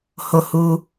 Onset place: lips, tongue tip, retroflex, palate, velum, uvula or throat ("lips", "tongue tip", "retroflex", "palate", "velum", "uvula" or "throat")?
throat